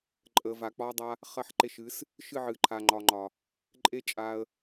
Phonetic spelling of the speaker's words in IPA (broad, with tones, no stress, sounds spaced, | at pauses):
ǃʼ ə˨ v a˨ k͡p ɒ˦ dˤ a˦ | χ ɐ˧ ħ ǃ e˧ ʃ ɨ˨˦ s | ʃ ɨ˦˨ ʕ ɨ˨ ǃʰ a˨ ŋ͡ǃ ɒ˨ ŋ͡ǃ ɒ˨ | ǃʼ e˦ t͡ʃʼ a˧ ə̯